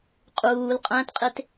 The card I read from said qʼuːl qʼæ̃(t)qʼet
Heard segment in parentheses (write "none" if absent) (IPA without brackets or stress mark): t